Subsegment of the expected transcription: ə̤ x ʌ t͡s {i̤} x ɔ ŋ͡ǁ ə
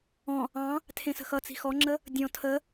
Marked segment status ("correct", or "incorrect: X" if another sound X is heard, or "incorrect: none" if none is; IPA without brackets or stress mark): correct